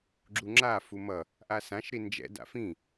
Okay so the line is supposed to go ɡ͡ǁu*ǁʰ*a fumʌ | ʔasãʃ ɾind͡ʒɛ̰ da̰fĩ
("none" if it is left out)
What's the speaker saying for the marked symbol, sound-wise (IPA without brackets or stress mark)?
ŋ͡ǁ